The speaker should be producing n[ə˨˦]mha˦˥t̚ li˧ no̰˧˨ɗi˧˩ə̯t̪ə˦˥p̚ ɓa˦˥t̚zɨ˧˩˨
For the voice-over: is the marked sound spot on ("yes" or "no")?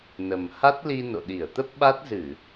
no